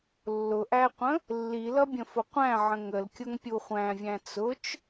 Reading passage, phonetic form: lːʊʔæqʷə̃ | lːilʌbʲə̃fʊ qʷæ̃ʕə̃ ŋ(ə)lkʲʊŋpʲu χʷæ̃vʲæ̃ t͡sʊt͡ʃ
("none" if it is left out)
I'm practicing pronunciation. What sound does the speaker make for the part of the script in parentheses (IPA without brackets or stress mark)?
ə